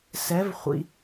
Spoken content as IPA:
s ɛ˨˥ v χʷ ḭ˨

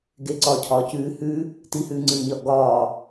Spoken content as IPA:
ɡ e ǀ ɒː cʰ ɒː c ʉː h ʉ | t i h ʉː ŋ͡ǀ ɨː ɲ ɒ ʔ ɡ ɒː

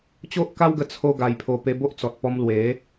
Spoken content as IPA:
t͡ɕ o˦ ʔ k a˦ w ɡ ə˧ t͡sʰ o˦ ɡ a˧ j pʰ o˧ p e˧ b o˦ ʔ t͡s ɔ˨ t̚ p ɔ˧ m l w e˨˦

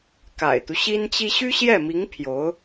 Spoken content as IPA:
k a̰˨˩ ɪ̯ t̪ u˦ ɕ i˥ n t͡ɕ i˥ ɕ y˥ ɕ j ɛ˥˩ m i˧˥ ŋ pʰ j o˧˥ ʊ̯

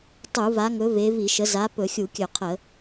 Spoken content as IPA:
tˤ u˧˩˧ v a˨˦ ŋ ɵ˨˦ v e˨˦ v i˧˩˧ ʃ ə˨˦ z a˨˦ p ɵ˧˩˧ xʲ u˧˩˧ kʲ ɵ˧˩˧ qʰ ə˧˩˧

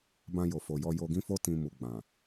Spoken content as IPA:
b ã˧ j o˨ f o˨ j ɔ˧ j o˧ ɡ ĩ˦ f o˦ t ĩ˧ m u˨ ɡ͡b ã˨

